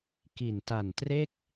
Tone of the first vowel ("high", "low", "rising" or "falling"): low